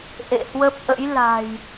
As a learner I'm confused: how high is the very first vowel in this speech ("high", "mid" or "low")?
mid